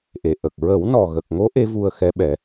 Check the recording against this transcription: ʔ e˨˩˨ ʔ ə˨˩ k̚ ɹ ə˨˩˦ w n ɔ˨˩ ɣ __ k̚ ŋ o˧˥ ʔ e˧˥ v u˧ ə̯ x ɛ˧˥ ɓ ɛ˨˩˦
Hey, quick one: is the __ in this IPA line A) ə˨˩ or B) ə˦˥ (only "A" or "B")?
A